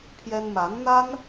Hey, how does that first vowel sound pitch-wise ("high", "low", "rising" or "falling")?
high